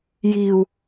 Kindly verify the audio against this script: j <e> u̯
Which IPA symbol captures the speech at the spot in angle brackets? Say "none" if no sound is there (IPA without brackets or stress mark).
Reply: i